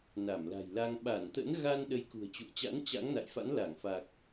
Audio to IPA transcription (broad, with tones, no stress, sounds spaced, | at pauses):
n a˧˩ m l a̤˨˩ j l a˧ ŋ ɓ a˧˩ n t̪ ə̰˧˥ n ɣ a˧ n ɗ ə˨˦ j k ṳ˨˩ ə̯ t͡ɕ ṵ˧˨ ə̯ t͡ɕ a̰˧˥ n t͡ɕ a̰˧˥ ŋ n a̰˧˨ j f a̰˧˥ n l a˧˩ ŋ f a˨˩ k̚